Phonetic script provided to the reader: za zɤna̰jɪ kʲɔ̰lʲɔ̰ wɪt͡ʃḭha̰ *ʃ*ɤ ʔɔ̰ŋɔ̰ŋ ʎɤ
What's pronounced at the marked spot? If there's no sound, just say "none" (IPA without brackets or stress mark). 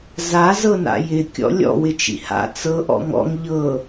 t͡s